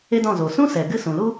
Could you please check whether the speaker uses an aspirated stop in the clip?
no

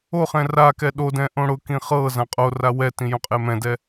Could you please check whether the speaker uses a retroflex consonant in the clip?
yes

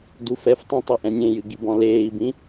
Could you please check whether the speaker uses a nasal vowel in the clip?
yes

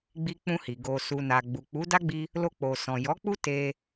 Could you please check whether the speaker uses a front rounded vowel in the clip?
no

